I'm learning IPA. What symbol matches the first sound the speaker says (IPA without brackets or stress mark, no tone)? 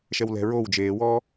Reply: ʃ